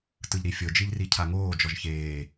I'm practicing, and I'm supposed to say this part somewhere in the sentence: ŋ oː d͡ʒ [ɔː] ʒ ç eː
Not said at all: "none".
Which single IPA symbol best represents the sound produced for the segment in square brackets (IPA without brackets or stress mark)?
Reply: ɔ